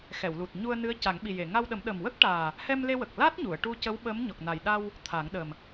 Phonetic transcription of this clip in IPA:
x ɛ˨˩˨ w l u˨˩ t̚ ɲ u˧ ə̯ n ɨ˧˥ ə̯ c a˨˩˦ ŋ ɓ i˨˩ j e˨˩˨ ŋ a˧ w ɗ ə˨˩˦ m ɗ ə˨˩ m w ə˦˥ k̚ ʈ aː˨˩ | h ɛ˧ m l e˧ w ə˨˩ k̚ l a˦˥ t̚ ɲ u˨˩˨ ə̯ ʈ u˧ c ə˧˥ w ɓ ə˧˥ m ɲ ɔ˨˩ k̚ n a˨˩ j ɗ a˧ w | t̪ʰ a˨˩˦ ŋ ɗ ə˨˩ m

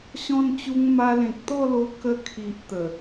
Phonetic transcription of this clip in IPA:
ɕ ɔ̃˧ n t͡ɕ u˧ ŋ m a˧ l ẽ˨ k̚ t̪ ɔ˥˧ l o˧ k ə˧ kʰ i˨ ʔ t̪ ə˨˩

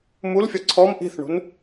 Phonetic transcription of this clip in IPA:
m u l fʲ ɒ ǀʰ ɔ m ʔ i̤ θ ɳ ṳ n

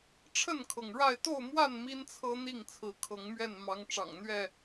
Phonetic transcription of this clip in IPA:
ʈ͡ʂʰ ə˥˨ n kʰ ɤ˩ ŋ ɻ a˥˨ ɪ̯ t̪ o˥˨ ʊ̯ m w a˥˨ n m i˦ n t͡sʰ ɤ˦ n̪ i˥˨ ŋ t͡sʰ ɹ̩˨˦ kʰ ɤ˨˦ ŋ m ɥ ɛ˥˨ n m ɑ˨˦ ŋ ʈ͡ʂ ɑ̰˨˩ ŋ n̪ ɥ ɛ˥˨

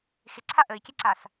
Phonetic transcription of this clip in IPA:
x ɪ ǀʰ a ʔ ə i̯ kʲ ɛ ǀ a s

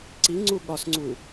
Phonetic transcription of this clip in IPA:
ǀ i ŋ͡ǀ u ɠ ɒ s ŋ͡ǀ u

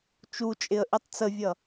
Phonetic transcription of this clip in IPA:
t͡ʃ u t͡ʃʼ ɪ ə̯ ʔ i tˤ t͡s ə vʲ ʌ

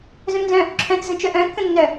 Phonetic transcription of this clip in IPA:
z œ̃ m n z œ̃ | ǁʰ œ̃ t z ə̃ t͡ʃ œ ʔ œ̃ kː ə̃ nː œ

